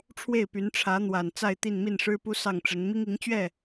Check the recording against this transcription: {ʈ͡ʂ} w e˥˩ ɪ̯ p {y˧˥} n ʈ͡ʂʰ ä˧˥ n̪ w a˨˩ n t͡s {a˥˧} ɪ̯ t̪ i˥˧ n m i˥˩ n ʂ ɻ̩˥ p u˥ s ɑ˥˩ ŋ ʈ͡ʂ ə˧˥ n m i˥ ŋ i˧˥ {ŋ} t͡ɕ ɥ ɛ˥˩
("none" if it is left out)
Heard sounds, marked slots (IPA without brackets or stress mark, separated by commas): ʈ͡ʂʰ, y˧˥, a˥˧, ŋ